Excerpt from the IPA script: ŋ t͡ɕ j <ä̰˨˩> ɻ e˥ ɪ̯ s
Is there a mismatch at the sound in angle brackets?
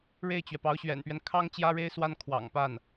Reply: yes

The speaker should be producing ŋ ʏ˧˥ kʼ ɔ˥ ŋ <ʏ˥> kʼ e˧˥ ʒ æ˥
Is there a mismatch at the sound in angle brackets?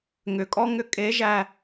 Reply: no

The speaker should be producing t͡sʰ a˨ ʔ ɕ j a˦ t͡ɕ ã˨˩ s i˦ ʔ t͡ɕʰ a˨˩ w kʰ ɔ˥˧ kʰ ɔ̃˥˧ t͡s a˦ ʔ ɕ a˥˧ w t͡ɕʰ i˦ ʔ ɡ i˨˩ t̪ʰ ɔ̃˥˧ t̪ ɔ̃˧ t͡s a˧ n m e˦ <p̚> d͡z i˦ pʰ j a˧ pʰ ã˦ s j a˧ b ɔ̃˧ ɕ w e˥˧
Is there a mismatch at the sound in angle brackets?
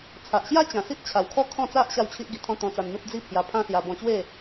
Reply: no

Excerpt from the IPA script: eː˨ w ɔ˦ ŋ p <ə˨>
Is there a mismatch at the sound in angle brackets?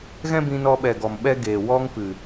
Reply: yes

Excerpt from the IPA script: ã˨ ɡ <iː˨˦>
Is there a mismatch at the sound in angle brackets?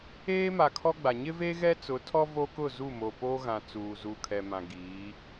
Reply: no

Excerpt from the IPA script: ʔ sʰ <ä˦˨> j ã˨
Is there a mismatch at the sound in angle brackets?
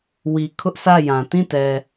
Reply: no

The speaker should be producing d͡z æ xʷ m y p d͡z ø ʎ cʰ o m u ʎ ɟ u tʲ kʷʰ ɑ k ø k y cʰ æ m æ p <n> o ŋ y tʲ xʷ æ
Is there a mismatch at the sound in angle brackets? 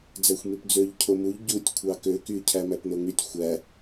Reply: no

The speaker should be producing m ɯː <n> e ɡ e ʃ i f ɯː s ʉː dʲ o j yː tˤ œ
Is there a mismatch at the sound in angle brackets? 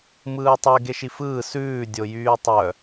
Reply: yes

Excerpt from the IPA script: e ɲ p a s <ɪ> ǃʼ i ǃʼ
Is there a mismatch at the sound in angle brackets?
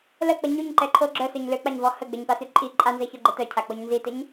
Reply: yes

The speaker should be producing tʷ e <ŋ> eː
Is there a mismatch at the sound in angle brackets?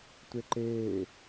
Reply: yes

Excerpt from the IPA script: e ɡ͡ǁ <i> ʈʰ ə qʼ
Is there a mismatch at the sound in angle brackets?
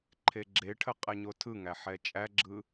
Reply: yes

